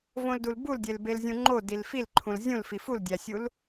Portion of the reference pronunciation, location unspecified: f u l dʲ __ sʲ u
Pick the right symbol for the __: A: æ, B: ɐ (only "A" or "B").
A